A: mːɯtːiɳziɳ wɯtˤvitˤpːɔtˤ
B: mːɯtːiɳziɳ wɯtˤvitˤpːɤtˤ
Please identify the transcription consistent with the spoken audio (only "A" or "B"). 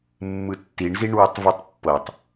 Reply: B